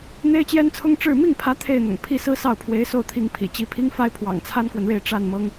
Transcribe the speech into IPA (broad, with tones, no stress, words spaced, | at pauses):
n̪e˥ɪ̯t͡ɕjɛ˥nt͡sʰʊ˥ŋ ʈ͡ʂɻ̩˥˧ mi˥˩ŋ pʰä˧˥ t̪ʰe˥˩ɪ̯n̪ʊ̰˨˩ŋ pʰi˥˩sɹ̩˥ sɑ˥˩ʊ̯pʰwe˧˥ɪ̯so˥˩ʊ̯t̪ʰi˧˥ŋ pʰḭ˨˩t͡ɕi˧˥ pʰi˥ŋfa˥ɪ̯ pʰwɑ̰˨˩ŋt͡sʰa˥nkwə˨nɻe˥˧ɪ̯ ʈ͡ʂa˥˩n mɤ˥ŋ